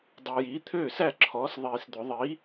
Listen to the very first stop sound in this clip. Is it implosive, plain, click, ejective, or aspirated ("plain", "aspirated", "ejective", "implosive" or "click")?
plain